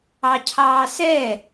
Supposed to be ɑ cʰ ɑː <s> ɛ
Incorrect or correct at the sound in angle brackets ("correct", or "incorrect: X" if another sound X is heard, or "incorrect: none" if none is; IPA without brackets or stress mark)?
correct